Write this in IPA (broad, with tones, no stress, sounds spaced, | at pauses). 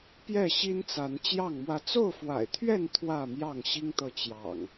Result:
p j ɛ˥˨ ɕ i˦ n t͡s a˨˦ n t͡ɕ j ɑ˥˨ ŋ m w ä˦ t͡s o˥˨ ʊ̯ f w a̰˨˩ ɪ̯ t̪ʰ ɥ ɛ˥˨ n t̪ʰ w ä˥˨ m j ɑ˥˨ ŋ ɕ i˦ ŋ t̪ ɤ˨ t͡ɕ j ɑ̰˨˩ ŋ